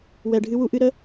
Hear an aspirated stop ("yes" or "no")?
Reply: no